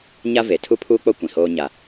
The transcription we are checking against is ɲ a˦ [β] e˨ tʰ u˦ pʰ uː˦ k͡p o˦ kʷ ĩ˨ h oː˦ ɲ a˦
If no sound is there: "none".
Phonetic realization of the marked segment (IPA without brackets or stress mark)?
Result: v